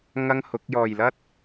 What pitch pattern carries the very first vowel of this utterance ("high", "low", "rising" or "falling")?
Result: high